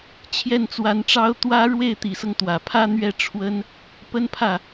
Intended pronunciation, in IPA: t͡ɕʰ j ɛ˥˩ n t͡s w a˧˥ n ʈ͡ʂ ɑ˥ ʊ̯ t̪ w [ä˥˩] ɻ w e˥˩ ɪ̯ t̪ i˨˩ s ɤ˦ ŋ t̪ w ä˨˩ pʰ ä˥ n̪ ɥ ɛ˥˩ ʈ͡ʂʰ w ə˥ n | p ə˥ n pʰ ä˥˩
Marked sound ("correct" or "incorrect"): incorrect